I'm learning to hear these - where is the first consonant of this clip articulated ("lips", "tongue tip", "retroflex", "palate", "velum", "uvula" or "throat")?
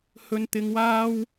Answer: throat